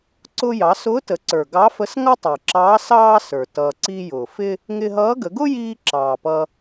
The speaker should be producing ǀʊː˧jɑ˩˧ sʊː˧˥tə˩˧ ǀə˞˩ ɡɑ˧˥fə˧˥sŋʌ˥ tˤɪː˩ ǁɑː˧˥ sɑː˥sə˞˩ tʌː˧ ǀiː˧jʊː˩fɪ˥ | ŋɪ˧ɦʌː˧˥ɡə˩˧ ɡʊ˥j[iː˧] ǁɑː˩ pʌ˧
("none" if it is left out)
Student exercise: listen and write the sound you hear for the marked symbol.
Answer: iː˧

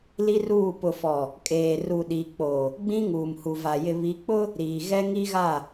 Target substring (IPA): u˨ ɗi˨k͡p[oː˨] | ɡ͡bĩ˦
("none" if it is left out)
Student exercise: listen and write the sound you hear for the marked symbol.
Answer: o˨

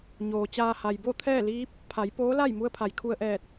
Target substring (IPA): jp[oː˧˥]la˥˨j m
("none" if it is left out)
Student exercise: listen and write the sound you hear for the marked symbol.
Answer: oː˧˥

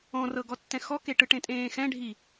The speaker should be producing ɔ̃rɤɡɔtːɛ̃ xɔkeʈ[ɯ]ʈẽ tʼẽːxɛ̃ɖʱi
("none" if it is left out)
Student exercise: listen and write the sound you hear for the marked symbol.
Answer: ɯ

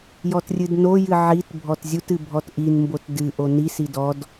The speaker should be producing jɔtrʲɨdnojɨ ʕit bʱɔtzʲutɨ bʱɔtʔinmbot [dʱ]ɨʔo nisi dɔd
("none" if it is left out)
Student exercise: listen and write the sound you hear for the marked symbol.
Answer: d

